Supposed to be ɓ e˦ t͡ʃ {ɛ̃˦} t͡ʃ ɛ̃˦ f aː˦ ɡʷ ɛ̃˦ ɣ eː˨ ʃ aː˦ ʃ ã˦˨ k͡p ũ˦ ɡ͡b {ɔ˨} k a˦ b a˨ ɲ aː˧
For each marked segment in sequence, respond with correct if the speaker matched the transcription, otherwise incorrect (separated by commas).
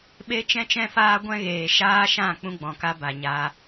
correct, incorrect